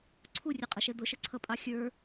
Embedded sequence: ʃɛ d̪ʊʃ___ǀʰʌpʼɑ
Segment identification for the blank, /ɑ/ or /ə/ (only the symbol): ə